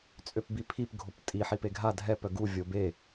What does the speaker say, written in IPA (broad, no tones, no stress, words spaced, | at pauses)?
t͡sʼøpbipʰip ɡʱoptʼi ħipeɡʱa dʱɛp œɡu vʲobe